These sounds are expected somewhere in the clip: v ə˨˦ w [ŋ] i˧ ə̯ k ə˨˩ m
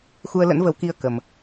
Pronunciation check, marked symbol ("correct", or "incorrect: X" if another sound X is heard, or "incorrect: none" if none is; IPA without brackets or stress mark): incorrect: k